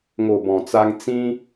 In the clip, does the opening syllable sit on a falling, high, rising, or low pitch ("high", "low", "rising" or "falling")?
low